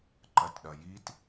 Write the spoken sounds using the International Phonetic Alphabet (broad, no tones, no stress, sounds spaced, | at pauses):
ǃ ɐ t ɗ ɐ j i t